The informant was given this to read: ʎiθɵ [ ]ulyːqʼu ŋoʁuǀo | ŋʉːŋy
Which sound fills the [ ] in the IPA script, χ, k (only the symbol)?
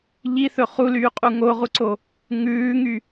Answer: χ